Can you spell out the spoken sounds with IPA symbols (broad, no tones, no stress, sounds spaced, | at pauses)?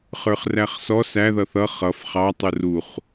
χ ə˞ χ r æ χ s ɔ s æ ð ʌ θ ʌ χ ʌ f χ ɑ tˤ u r u χ